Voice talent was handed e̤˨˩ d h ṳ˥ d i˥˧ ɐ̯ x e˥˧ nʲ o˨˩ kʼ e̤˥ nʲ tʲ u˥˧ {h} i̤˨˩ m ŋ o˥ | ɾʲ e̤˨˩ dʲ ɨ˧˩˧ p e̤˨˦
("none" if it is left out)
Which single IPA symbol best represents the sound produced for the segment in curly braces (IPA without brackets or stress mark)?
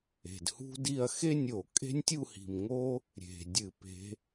h